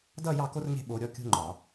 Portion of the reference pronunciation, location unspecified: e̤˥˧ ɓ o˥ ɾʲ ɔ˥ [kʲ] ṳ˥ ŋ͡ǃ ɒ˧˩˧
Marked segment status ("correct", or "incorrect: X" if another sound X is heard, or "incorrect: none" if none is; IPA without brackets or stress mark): correct